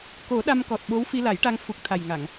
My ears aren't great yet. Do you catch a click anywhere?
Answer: no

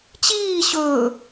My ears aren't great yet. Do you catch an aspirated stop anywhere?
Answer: no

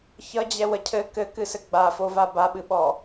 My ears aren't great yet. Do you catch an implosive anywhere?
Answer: yes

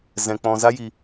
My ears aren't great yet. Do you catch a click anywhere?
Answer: no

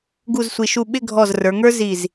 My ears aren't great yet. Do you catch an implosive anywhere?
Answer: yes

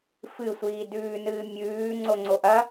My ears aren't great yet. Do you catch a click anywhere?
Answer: yes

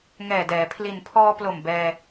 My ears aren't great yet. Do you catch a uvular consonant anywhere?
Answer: no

